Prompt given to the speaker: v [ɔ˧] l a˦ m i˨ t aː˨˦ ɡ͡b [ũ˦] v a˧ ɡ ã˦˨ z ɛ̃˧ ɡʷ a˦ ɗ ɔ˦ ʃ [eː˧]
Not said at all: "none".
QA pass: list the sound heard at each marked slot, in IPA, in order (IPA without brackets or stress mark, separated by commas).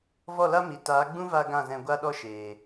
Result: ɔ˦˨, ũ˦, eː˨